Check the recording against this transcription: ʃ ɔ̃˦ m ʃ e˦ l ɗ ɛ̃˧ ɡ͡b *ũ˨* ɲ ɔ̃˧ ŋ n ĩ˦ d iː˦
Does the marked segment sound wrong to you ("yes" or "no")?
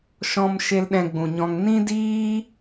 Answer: no